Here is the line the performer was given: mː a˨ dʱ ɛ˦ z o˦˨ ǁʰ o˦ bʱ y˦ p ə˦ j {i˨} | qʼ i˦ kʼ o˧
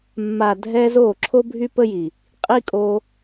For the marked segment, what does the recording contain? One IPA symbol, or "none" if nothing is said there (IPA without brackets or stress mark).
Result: i˨